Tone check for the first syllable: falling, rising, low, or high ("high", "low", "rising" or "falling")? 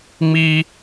high